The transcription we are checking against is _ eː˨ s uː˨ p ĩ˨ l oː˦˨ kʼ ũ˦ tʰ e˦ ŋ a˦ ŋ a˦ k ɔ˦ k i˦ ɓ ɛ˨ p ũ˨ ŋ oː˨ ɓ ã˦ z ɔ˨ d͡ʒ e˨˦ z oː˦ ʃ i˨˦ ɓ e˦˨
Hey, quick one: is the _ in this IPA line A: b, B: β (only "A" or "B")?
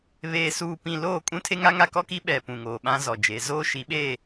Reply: B